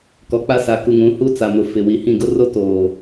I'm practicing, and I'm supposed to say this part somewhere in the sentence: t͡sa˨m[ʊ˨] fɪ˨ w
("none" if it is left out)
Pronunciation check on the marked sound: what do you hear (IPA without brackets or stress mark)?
ʊ˨